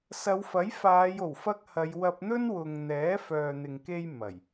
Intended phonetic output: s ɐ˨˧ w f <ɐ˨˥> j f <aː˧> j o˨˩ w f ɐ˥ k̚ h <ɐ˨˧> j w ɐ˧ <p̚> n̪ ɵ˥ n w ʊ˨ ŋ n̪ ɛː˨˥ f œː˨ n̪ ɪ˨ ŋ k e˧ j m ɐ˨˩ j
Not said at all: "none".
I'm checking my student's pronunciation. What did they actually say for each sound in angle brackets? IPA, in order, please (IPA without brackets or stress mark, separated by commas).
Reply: ɐ˨˥, aː˨˧, ɐ˨˧, p̚